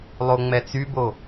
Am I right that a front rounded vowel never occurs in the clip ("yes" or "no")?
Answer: no